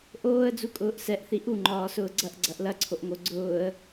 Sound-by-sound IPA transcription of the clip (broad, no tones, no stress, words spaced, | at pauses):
ʔoːə̯ d͡zukʼʊːʔsɛʔ θiʔu ŋ͡ǃɒːsʊːɡ͡ǀɐʔ ɡ͡ǀɐʔlɐ ǀʰoʔŋoɡ͡ǀʊːə̯